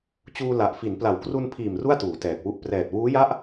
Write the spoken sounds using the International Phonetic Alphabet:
t͡ɕuː˧la˨˩ʔfi˩˦n pla˩˦wkru˧npʰiː˨˩m ru˥˩a̯tuː˩˦tɛː˨˩k̚wu˦˥ʔ prɛː˨˩t̚wuː˦˥ja˥˩ʔ

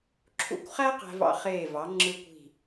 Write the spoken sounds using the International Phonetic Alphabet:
ǁʰṵ˧kʷχæ˥ qæ̤˧vɑ̰˧χeː˧˩vɑ˩˧ ŋ͡ǁɯ˧kʷi̤˧˩

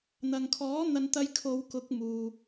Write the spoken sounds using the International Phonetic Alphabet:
n̪ɐ˨ŋkʰɔː˨˥ n̪ɐ˨nt̪ɐ˨j kʰo˨˧wkʊ˨˥k̚muː˨

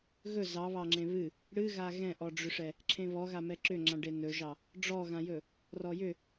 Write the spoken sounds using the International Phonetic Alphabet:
ɣɵ zɑβɑŋ͡ǁẽ βɨ | ɽɨɣa ɣɛ̃ʔɔɖ͡ʐʏʂɛ | ǁʰẽβɔɣa mɛǁʏŋ͡ǁãɖe nɵʒɑ | ɖ͡ʐɔɣãjɵ | rɔjʏ

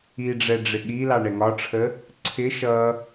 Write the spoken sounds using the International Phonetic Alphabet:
iɖ͡ʐɛ ɖ͡ʐɪɠilɑ ɳɛŋɒʈ͡ʂʰə | ǀʰɪ ʃʌ

